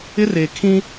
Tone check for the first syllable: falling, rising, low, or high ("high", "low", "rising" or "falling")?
high